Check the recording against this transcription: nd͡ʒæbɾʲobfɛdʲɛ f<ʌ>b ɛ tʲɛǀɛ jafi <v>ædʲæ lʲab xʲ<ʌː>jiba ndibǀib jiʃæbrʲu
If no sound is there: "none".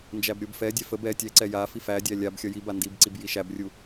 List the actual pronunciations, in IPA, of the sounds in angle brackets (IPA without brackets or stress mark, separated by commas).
ə, f, ʌ